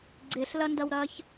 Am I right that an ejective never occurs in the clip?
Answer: yes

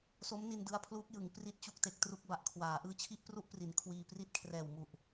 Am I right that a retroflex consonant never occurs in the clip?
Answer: yes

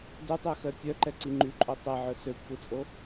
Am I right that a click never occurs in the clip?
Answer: no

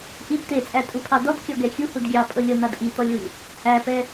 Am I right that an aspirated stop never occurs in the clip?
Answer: no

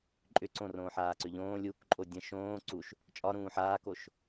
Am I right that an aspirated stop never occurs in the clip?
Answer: yes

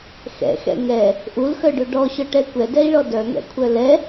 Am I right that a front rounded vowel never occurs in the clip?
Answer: no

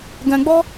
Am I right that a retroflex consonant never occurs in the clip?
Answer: yes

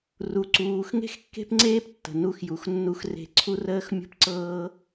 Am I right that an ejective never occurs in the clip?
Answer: yes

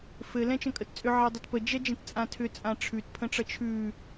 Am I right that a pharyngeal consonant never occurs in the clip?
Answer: no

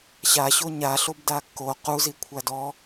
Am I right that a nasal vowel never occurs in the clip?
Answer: yes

